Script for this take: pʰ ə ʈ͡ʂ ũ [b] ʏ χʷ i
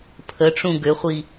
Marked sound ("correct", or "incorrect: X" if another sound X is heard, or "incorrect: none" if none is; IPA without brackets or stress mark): incorrect: ɡ